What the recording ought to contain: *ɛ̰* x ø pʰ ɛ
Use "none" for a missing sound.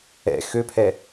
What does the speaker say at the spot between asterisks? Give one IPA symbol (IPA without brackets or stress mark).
ɛ̰